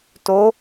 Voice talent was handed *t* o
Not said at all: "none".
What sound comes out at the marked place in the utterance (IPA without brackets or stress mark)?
t